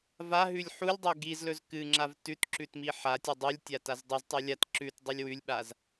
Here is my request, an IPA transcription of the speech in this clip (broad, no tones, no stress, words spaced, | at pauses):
vaɦʉlʲ ħulʲdˤe ɡizlɵz kɨŋ͡ǁav tʉtǁʉt miħatʲɵ dˤʉlʲtʲa tazdˤuztˤɵ lʲat ǁʉt dˤɵlʲwʉlʲɓaz